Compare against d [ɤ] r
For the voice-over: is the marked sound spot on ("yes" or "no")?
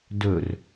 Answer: no